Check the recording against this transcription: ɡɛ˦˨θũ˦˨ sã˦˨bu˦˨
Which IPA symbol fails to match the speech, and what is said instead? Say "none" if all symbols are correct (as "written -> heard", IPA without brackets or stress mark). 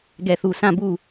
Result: ũ˦˨ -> u˦˨